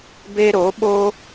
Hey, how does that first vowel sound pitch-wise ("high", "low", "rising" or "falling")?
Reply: high